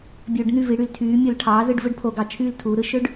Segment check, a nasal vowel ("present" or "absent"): absent